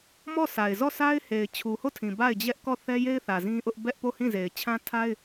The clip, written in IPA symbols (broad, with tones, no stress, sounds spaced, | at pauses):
m ɔ˦˨ sʰ a˨ ɪ̯ z ɔ˦˨ s a˦ ɪ̯ h e˨ ɪ̯ t͡ɕʰ u˨ h o˦˨ tʰ ĩ˨ b a˦˨ ɪ̯ d͡ʑ ɛ˦ ʔ k ɔ˦˨ θ ɛ˦ j e˦ ɪ̯ θ ä˨ z ĩ˦ ʔ ʊ˦ ʔ b ɛ˦ ʔ p o˦˨ h ĩ˦˨ z e˨ ɪ̯ t͡ɕʰ ã˦ tʰ a˦ ɪ̯